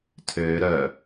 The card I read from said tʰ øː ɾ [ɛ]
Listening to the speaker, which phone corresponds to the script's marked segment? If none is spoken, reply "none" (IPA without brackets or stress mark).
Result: œ